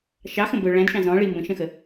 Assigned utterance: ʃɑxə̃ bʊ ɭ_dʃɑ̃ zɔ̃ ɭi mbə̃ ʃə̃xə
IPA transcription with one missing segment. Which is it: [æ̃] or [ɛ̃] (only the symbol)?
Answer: æ̃